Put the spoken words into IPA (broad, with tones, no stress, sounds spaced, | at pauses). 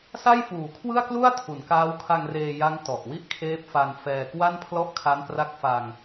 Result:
s a˥˩ j f uː˩˦ kʰ w ɯ˥˩ a̯ k l u˥˩ a̯ tʰ u˩˦ n k aː˦˥ w kʰ a˧ ŋ r eː˧ j a˦˥ ŋ t ɔ˨˩ ʔ w i˥˩ ʔ kʰ eː˦˥ p̚ f a˧ n f ɛː˧ k w a˥˩ n pʰ l ɔ˥˩ ʔ kʰ a˦˥ n p r a˦˥ k̚ f a˧ ŋ